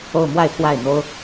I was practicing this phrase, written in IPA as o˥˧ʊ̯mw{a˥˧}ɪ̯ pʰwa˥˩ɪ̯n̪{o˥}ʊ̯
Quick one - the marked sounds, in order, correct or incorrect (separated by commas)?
correct, correct